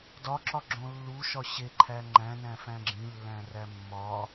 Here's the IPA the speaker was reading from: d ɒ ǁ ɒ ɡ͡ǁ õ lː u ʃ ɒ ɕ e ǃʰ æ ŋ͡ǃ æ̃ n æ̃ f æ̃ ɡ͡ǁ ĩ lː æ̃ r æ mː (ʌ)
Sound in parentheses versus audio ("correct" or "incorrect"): incorrect